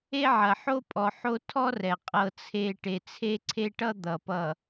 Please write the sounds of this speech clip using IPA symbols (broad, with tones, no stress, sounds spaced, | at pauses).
e˦ ʕ ɐ˨ ħ o˦ pʼ ɔ˨ ħ o˦ tʰ ɔ˦ r ɛ˨ qʼ ɤ˨ t͡sʰ e˨ ʈ e˨ t͡sʰ e˦ ǀʰ e˦ ʈ ʌ˦ d̪ ʌ˨ p ʌ˨